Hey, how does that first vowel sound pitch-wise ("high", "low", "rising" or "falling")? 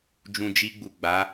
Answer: low